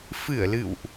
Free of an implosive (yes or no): yes